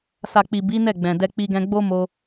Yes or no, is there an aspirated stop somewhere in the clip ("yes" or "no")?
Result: no